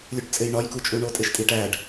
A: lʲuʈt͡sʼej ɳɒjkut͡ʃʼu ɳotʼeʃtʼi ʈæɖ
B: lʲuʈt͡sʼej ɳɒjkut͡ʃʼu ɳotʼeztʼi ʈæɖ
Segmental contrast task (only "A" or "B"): A